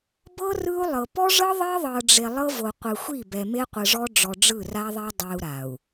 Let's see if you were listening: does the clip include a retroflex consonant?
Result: yes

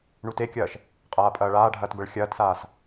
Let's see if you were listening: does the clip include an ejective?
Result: yes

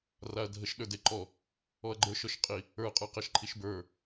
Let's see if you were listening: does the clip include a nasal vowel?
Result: no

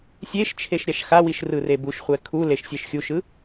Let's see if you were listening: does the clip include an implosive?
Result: no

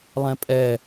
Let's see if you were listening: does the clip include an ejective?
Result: yes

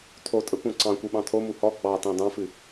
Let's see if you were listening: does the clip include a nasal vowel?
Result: yes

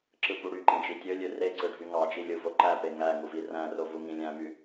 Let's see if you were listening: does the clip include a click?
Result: yes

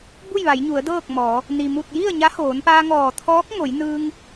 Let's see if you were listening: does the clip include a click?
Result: no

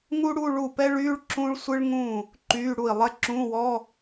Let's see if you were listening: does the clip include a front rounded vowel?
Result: yes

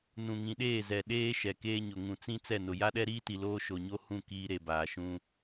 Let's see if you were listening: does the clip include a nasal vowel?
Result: yes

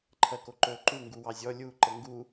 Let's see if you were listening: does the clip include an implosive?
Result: no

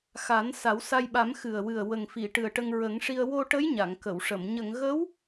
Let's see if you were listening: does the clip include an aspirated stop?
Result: no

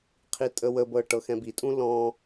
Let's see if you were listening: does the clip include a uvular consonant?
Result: yes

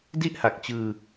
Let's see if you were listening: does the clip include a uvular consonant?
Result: no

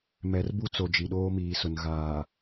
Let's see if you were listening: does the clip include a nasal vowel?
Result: no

